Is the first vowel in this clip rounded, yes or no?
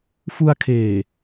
yes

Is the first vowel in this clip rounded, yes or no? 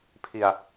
no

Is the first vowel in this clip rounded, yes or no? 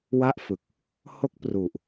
no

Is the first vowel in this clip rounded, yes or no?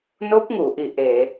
yes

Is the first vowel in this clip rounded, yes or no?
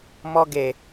yes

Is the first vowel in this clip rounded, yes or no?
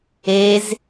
no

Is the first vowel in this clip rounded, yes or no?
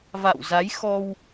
no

